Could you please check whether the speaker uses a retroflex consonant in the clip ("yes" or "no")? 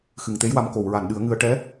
yes